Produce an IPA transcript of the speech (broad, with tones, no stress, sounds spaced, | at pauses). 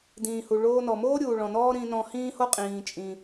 d ĩː˩ h u˩ ɭ oː˧ n ɔ˩ m oː˥ ɾʲ uː˩ ɭ ɔ̃˩ n ɔː˥ ɾ ĩ˧ n ɔ̃˧ h ĩː˥ h o˥ qʼ ĩː˩ t͡ʃʼ ĩ˩